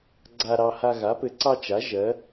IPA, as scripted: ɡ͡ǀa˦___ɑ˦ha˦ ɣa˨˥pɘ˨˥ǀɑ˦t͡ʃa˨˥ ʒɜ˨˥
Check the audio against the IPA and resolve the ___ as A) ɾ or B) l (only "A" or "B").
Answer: A